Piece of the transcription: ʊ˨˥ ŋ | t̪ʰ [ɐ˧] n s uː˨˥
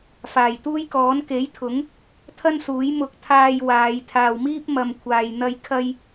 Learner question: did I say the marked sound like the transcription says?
no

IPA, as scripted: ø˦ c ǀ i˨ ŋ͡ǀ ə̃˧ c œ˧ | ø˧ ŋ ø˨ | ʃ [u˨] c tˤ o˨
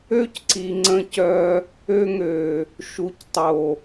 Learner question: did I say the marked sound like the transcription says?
yes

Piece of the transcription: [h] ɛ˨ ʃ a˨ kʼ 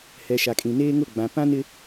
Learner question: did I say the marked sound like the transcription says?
yes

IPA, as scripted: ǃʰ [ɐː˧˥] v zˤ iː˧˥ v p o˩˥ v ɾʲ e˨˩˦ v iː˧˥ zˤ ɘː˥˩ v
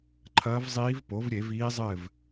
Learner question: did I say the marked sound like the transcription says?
yes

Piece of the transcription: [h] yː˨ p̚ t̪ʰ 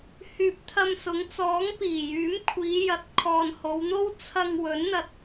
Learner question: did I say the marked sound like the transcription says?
yes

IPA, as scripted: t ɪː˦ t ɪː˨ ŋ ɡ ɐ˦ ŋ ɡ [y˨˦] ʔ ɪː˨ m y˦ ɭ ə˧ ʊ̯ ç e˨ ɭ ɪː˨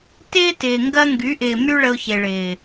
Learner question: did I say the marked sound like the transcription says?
yes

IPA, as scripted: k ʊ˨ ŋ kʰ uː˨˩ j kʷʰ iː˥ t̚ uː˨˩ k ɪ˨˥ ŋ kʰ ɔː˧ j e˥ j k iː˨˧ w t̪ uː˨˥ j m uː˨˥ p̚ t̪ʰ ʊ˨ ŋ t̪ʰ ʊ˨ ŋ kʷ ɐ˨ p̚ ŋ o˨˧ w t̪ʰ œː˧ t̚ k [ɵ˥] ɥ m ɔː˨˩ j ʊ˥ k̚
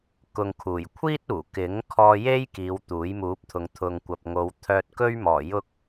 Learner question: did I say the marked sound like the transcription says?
yes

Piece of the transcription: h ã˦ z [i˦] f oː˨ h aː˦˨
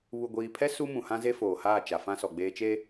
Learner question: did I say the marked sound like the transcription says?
no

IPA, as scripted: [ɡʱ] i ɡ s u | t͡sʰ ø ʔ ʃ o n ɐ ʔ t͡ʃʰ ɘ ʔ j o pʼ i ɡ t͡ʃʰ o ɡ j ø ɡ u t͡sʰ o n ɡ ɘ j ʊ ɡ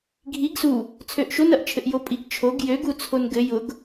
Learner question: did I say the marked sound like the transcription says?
yes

